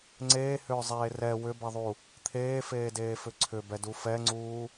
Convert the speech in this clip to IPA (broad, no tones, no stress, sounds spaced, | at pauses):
ŋ͡ǀ eː h ʏː zˤ eː r ɛ w ʏ b ɛ ðˤ u | t̪ʰ eː f eː d eː f ʏ ǀʰ ʏ b ɛ d u f ɛ ŋ͡ǀ uː